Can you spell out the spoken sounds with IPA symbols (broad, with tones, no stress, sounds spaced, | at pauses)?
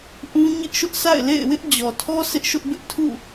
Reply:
ʔ ũ˦ ɲ ɪ˦ ʔ ʃ ʊ˦ ʔ sʰ a̰˦˨ ɪ̯ l ḛ˦˨ ɪ̯ w ɪ˦ ʔ d͡ʑ ɔ˨ tʰ ɔ˦ sʰ ɪ˦ ʔ ʃ ʊ˦ ʔ b ɪ˦ ʔ tʰ ṵ˦˨